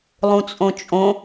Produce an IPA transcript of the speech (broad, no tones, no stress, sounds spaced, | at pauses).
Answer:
lˠ ũ t͡sʼ õ t͡ʃʼ õ